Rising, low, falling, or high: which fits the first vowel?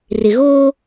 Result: low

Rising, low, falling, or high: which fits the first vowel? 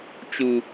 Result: low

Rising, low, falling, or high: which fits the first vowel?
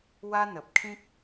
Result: high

